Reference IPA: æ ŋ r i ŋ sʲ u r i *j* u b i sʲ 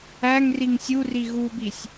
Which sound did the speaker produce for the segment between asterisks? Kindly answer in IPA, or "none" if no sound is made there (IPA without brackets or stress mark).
ɣ